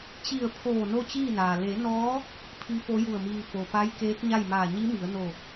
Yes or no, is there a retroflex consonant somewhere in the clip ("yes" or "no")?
no